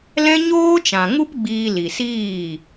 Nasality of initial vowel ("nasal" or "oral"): nasal